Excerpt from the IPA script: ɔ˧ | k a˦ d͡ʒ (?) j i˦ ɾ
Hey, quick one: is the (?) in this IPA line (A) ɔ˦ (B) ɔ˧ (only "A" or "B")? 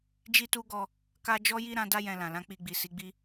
A